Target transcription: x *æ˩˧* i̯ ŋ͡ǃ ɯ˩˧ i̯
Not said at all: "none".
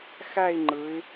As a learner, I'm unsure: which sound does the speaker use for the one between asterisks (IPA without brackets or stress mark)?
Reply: æ˥˧